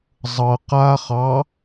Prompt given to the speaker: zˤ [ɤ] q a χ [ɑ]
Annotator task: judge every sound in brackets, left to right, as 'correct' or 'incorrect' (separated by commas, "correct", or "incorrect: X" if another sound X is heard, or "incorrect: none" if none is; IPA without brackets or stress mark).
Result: correct, correct